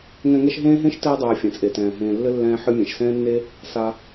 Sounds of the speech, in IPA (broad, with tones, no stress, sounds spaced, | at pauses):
ŋ ɛ̃˦ ŋ ɛ˥ ʃ ɦ ẽː˥ ɦ ẽ˥ ʃ t ɘː˦ dˤ ɛː˨ fʲ ɛ̃˩ t͡sʼ e˩ t ɛ̃ː˩ ɦ ẽː˨ lː ɘ˥ lː ɛ̃ː˦ ħ ɨ˦ mʲ ẽ˩ ʃ s ɛ̃ː˥ nː e˥ | s a˨